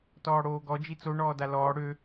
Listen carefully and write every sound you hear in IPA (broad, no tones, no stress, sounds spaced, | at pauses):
t ɔː ɽ oː ɡ ɔ d͡ʒ i t͡s o ɳ ɔː d a l ɔː ɽ ø